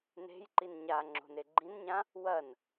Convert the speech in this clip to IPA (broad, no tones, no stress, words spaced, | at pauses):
ne̤jǃin ɲa ŋ͡ǁo̤neɡ͡ǃĩnɲã | wɐn